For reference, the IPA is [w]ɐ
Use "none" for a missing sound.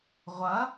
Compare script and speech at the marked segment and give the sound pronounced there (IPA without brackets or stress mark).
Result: ʁʷ